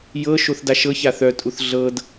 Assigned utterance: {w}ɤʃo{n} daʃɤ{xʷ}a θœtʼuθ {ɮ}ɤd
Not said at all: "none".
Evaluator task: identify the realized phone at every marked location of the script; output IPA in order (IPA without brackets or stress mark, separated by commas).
j, θ, ç, ɮ